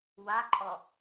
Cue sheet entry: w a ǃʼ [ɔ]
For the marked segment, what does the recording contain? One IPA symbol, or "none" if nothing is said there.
ɔ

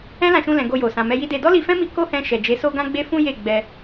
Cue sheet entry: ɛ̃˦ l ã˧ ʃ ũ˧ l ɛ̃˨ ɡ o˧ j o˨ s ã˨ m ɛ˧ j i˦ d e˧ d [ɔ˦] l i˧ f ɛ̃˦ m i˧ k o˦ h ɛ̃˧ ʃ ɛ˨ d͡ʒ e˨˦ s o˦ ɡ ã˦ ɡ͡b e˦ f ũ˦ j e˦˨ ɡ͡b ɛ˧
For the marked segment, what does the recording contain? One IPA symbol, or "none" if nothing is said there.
ɔ˦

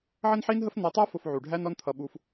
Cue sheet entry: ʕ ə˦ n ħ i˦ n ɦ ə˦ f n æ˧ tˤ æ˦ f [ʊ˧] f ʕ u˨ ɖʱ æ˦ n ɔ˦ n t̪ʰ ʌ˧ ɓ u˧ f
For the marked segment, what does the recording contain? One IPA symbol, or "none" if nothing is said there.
ʊ˧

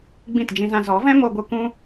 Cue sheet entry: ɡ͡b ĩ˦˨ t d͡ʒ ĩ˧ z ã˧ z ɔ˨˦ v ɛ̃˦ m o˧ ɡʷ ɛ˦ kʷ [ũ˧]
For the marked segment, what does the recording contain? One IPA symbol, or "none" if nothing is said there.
ũ˦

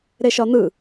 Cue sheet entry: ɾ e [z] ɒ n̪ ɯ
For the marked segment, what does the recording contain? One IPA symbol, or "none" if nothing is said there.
ʃ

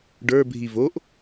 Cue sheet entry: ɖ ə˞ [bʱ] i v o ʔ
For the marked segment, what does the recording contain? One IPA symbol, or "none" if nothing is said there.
bʱ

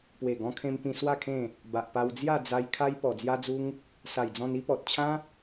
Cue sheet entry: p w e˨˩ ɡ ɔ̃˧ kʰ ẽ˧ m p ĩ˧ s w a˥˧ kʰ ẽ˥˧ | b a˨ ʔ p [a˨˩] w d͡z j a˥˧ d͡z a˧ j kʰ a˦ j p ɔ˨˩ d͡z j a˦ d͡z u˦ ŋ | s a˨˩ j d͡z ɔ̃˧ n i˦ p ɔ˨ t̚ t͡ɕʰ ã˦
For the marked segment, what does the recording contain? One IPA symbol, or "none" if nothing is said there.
a˧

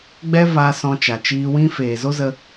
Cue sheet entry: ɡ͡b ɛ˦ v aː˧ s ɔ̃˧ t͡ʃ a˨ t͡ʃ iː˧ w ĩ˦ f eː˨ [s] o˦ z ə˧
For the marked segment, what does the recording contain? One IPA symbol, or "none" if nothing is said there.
z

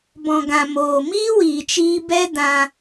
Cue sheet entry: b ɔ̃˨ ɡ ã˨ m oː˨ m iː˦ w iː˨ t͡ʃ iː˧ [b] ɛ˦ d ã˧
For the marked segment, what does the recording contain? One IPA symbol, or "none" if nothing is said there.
b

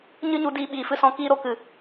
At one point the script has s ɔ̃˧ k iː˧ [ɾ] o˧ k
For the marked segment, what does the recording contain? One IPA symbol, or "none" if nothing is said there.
ɾ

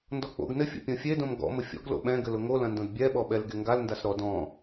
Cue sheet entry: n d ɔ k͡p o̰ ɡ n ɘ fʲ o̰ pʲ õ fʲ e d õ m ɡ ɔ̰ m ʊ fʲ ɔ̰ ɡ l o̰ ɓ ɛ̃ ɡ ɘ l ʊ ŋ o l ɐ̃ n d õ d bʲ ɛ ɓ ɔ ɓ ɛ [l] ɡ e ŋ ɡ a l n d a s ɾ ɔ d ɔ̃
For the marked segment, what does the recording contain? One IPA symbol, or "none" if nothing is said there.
l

